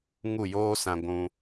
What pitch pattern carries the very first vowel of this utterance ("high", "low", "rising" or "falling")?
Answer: falling